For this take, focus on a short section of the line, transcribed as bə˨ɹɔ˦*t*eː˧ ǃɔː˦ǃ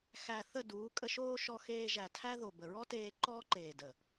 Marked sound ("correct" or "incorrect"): correct